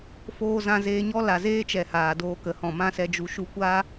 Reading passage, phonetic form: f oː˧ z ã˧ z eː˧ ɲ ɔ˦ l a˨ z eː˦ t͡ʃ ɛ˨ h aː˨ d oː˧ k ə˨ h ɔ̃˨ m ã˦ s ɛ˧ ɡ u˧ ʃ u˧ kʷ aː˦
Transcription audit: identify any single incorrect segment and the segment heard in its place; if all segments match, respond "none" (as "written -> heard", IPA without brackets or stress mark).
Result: ɡ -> d͡ʒ